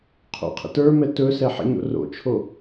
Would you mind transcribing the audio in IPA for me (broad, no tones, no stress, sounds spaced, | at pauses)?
qʰ o̰ qʰ ə̰ t ə˞ m ɛ t ɵ s ɛ ħ ə̰ ɲ o̰ r o̰ t͡ʃʰ o